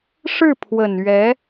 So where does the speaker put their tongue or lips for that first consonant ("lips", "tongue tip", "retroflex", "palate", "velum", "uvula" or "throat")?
retroflex